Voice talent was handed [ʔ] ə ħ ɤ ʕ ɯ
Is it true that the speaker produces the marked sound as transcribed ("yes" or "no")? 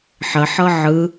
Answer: no